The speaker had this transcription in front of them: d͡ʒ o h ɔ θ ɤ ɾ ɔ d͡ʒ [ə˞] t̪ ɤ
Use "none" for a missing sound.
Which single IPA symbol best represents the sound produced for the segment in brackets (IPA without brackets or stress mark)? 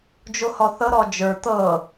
ə˞